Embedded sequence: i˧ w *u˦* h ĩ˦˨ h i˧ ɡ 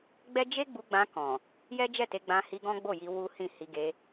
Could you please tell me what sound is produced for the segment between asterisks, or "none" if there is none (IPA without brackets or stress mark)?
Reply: u˦